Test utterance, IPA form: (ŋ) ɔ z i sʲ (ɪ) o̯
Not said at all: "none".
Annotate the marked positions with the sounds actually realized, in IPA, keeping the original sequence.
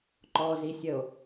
ǃ, ə

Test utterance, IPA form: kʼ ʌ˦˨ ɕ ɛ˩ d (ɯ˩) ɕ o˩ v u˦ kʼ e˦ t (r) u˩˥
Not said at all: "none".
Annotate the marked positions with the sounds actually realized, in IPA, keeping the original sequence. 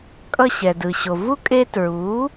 ɯ˩, ɹ

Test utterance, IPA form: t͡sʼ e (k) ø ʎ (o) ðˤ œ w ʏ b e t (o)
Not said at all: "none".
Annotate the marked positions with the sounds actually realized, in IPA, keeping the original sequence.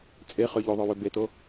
χ, o, o

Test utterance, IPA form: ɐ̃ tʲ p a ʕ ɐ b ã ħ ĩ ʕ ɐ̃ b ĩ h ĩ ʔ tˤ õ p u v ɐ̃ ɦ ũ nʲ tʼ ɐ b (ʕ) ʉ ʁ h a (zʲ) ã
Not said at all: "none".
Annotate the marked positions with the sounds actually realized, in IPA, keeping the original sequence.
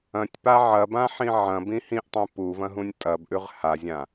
ʔ, zʲ

